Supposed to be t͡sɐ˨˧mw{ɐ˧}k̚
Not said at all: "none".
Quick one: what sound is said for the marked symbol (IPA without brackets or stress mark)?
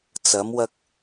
ɐ˧